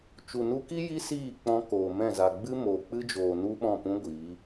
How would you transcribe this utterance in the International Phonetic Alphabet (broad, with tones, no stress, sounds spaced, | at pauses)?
t͡ʃ u˨ n u˧ k i˦ j i˦ s iː˦˨ k͡p ɔ̃˧ k oː˨ m ɛ̃˦˨ z a˨ ɡ͡b ɨ˦ m oː˨ k͡p ɨ˦ d͡ʒ oː˨ n u˦ ɓ ɔ̃˦˨ p ũ˦ ɡʷ iː˨˦